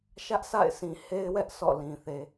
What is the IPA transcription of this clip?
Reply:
ʃä˦ʔsa̰˦˨ɪ̯sʰĩ˨ he˦ɪ̯wɛ˦ʔ sʰɔ̰˦˨lĩ˨θe˨

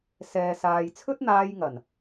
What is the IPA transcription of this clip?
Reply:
sɛː˨saː˨jt͡sʰɵ˥t̚ n̪aː˧jŋɐ˨˩n

